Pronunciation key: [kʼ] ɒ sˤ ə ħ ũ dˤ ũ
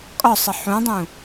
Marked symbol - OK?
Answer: yes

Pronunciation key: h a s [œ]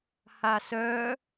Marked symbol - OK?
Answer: yes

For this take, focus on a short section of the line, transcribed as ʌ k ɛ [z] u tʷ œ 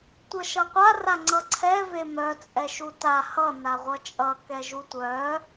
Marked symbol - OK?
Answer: no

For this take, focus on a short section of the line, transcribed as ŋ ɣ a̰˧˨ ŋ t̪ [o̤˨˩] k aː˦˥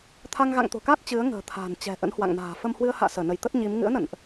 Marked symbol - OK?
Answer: yes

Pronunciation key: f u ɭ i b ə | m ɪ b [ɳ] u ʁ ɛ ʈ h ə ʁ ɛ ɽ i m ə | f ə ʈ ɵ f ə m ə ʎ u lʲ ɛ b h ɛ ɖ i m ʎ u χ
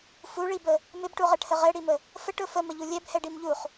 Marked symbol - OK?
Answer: no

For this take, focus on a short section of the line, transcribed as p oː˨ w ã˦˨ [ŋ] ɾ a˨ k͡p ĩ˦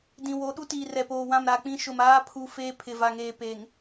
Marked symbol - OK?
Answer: no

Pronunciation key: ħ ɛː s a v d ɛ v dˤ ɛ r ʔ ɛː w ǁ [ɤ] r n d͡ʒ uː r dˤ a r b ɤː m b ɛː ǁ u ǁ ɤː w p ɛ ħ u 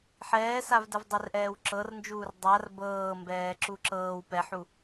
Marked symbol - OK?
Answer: yes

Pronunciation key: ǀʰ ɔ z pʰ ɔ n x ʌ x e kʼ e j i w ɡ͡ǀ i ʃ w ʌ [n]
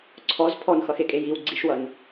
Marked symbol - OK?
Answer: yes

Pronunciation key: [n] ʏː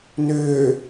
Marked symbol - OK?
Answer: yes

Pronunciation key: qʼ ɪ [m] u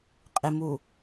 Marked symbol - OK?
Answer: yes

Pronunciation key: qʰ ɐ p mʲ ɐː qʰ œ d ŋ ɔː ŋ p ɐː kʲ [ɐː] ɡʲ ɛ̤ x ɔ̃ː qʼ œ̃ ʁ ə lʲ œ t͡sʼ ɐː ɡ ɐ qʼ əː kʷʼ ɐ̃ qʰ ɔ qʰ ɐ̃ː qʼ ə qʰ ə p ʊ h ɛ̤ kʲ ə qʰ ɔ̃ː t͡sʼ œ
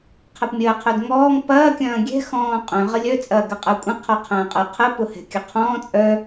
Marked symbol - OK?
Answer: no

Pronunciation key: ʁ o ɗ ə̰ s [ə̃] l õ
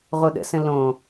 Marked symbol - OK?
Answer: yes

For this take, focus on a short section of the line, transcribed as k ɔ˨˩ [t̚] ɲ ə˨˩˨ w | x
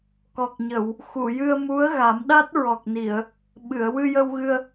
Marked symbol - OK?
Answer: no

